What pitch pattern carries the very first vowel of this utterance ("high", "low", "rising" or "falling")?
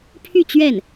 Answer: falling